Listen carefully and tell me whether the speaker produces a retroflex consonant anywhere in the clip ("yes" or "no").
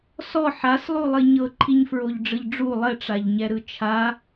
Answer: yes